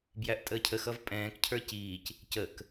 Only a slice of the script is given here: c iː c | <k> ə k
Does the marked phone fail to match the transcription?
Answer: yes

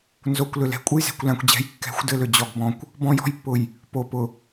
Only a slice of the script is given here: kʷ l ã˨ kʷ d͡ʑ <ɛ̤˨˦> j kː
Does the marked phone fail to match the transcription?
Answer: no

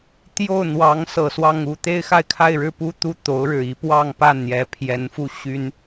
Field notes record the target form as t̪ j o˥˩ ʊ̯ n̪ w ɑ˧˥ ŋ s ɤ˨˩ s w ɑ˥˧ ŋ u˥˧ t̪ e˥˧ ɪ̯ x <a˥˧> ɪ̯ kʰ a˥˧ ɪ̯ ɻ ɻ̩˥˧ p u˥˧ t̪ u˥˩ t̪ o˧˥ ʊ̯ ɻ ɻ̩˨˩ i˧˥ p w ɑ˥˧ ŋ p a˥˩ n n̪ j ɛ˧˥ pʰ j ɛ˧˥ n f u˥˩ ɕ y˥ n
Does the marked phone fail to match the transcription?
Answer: no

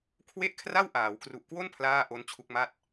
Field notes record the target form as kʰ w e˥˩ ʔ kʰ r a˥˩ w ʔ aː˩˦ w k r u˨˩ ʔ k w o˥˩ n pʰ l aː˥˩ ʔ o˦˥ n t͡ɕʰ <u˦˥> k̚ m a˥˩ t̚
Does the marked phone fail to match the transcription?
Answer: no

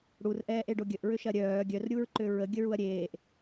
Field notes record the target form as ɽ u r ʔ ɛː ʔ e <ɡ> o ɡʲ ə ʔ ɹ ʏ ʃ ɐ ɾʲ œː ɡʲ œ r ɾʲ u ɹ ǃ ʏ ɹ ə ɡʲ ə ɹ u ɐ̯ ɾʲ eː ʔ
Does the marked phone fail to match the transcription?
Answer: yes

